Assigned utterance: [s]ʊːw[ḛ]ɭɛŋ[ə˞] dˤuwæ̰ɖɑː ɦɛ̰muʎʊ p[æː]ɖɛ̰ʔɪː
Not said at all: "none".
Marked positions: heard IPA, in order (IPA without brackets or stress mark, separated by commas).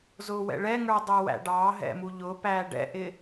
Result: z, ɛ̰, ə˞, æː